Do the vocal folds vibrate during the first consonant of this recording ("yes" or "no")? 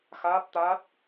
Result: no